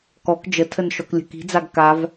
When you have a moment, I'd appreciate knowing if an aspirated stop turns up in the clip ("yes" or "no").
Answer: yes